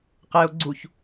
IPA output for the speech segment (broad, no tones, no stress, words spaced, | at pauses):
qeo̯ ɡ͡ǀuç